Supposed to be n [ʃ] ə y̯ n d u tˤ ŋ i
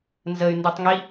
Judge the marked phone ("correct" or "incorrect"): incorrect